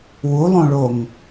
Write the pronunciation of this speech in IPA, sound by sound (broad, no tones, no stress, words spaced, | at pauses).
wulˠõɭoŋ